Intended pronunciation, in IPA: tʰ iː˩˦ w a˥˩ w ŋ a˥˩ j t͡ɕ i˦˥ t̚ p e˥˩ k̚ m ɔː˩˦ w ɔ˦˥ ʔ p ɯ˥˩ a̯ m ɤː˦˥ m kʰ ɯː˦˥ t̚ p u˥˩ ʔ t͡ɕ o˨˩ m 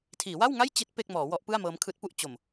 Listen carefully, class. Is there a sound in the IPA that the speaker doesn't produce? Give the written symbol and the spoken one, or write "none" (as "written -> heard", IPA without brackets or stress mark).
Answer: none